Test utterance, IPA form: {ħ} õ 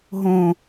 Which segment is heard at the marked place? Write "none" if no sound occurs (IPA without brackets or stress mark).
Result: ɦ